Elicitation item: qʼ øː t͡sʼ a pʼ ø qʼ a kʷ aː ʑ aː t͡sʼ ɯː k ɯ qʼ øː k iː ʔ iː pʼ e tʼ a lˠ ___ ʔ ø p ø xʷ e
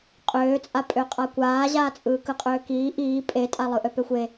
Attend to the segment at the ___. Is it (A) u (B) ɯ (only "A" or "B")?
B